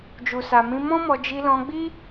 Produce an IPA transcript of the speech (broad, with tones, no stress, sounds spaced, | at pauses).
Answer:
d͡ʒ u˨ s a˨ m ĩ˧ m ɔ̃˦ m ɔ˧ d͡ʒ i˧ l ɔ̃˧ ɡ͡b i˦